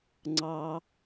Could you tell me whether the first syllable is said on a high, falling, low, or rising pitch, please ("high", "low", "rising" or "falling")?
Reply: high